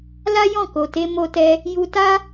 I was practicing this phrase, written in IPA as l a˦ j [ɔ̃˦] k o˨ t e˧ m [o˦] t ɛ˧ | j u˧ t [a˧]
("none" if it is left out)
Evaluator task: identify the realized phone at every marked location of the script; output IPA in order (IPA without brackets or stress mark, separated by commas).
ɔ̃˦˨, o˧, a˦